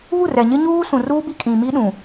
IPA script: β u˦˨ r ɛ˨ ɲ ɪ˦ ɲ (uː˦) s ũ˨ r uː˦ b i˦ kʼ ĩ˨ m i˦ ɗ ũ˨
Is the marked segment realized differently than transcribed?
no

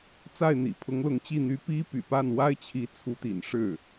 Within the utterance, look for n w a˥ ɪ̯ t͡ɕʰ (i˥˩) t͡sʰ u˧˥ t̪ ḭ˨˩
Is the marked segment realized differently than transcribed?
yes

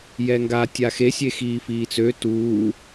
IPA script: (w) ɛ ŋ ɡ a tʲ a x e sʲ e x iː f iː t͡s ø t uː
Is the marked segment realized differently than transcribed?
yes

